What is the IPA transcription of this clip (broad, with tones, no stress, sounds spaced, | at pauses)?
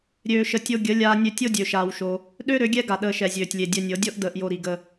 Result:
ɾʲ øː˧ ʃ ə˧ tʲ o˧ ɡʲ ə˨˦ lʲ aː˧ nʲ ø˧ tʲ o˦ dʲ ø˧ ʃ aː˧ w ʃ o˧ | ɗ ø˦ ɾ ø˨˦ ɡʲ ɛ˦ ɡ a˨ ɗ əː˧ ʃ ɛ˨ zʲ øː˨ tʲ lʲ e˨ dʲ ɛ˧ nʲ ɤ˨˦ dʲ ɤ˦ ʔ d əː˧ ʔ j o˧ ɾ i˨ ɡ ə˧